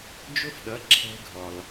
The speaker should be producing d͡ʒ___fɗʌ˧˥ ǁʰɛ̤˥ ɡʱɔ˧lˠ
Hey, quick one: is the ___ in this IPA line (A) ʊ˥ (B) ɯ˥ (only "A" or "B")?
A